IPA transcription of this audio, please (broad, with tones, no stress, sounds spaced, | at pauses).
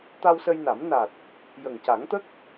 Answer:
t̪ a˧ w s ə˧ j n a˨˩˦ m n a˨˩ t̚ | j ə˨˩ ŋ c a˨˩˦ ŋ t̪ ə˦˥ k̚